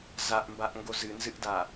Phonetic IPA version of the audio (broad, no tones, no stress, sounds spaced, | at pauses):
z a ʔ m b a ʔ ŋ ɡ o z ɨ n z ɨ ʔ d a